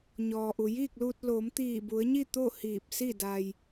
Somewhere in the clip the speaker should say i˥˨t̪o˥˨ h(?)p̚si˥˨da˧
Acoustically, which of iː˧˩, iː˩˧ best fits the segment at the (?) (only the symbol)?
iː˧˩